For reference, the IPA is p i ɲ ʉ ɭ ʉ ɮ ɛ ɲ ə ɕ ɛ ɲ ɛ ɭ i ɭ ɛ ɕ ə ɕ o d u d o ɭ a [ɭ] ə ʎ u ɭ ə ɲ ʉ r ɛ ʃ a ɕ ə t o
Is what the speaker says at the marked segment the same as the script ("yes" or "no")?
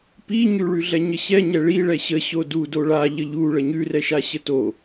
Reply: no